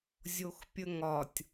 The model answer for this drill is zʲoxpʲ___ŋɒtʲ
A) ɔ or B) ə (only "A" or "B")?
B